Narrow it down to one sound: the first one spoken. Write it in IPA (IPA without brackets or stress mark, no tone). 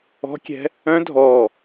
ɔ̤